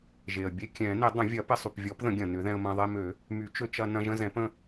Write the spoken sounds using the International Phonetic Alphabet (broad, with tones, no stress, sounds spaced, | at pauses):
ʒ e˩ ə̯ bʲ e˧ kʲ ɛ̃˨˩˦ n ɪ˨˩˦ dˤ ə̃˨˩˦ vʲ ɐ˨˩˦ p ɪ˧ sˤ y˩ p vʲ ɔ˨˩˦ p ð ə̃˨˩˦ ɡʲ ɐ̃˩ n ʏ˨˩˦ ð ɛ̃˧ ə̯ m ɐ̃˧ ðˤ e˧ m ø˨˩˦ | m y˨˩˦ t͡ʃ ø˧ t͡ʃ ɐ˧ n ɐ̃˧ ʒ ə̃˧ z ɛ̃˨˩˦ p ə̃˧